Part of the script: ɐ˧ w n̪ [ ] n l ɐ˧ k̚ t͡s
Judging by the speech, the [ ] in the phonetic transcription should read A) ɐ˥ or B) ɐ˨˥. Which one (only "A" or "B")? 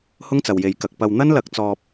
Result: A